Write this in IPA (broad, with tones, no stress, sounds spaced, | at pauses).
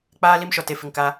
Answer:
k͡p aː˦ l i˦ m ʃ ɔ˨ t e˨ f ɪ˨ ŋ k a˦